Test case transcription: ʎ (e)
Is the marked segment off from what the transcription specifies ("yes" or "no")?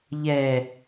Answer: yes